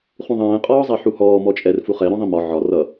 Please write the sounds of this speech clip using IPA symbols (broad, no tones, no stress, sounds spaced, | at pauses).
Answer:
χ ũ ðˤ ɛ̃ː qʼ ɒː zˤ ɛ ħ u h ɔː m ɔ t͡ʃʼ ɛ r f u χ ɛ ɾ ɔ̃ ðˤ ĩ m ɒ ʕ ɒ r ʌ